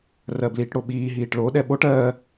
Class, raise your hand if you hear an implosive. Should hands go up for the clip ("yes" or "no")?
yes